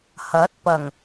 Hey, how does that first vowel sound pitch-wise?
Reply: rising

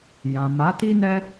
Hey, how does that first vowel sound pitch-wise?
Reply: low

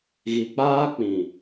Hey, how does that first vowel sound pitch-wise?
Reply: low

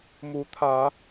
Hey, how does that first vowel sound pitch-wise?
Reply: rising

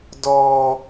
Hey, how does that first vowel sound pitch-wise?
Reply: high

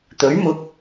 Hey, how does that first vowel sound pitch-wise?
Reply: rising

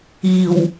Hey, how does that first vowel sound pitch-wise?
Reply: low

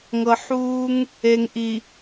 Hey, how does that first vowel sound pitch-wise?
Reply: low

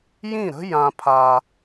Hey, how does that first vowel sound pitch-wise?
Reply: falling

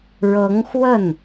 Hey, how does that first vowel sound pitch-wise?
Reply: rising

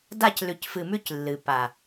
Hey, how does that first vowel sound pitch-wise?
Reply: falling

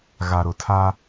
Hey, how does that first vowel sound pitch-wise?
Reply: low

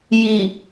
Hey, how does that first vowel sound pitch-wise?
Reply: low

